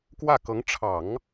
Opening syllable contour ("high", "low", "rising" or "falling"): falling